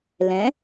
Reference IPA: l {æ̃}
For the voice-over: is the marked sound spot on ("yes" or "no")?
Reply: no